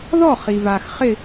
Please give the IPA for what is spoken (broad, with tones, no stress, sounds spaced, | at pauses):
ð ɔ˥˨ χ i˨ v a˨ x χ ɪ˥˨